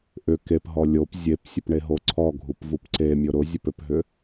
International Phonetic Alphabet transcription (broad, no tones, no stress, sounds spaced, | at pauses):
ʔ ʏ k e p ɦ ɔ lʲ o p zʲ e p sʲ ə p ɳ e ɦ o ǀʰ ɔ ɡʱ u p v u p ǀ e mʲ ʊ ɾ ʊ zʲ ə p ʏ p ɦ ʏ